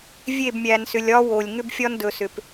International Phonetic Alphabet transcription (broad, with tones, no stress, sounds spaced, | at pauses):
vʲ e˦˨ b mʲ æ˨ n s ʏ˨ lʲ ɒ˦ w o˨ lʲ ŋ ʏ˦ b fʲ ɒ˦ n d ɵ˨ s ʏ˨ p